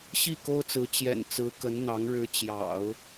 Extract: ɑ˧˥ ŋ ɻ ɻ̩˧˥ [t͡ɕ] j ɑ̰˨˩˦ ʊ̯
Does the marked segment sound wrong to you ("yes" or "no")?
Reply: no